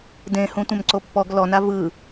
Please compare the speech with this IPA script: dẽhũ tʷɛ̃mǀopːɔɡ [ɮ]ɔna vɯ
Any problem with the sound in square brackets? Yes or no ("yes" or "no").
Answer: yes